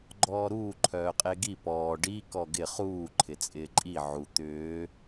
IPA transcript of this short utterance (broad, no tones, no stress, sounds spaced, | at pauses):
ɡ͡ǃ ɔː ɾ uː ǃʰ œː qʼ e ɡ i p ɔː ɖ i k ɔ ɡ ɪ χ uː ǃʰ ɪ t͡sʼ ɪː ǃʼ i ʕ u t̪ ʏː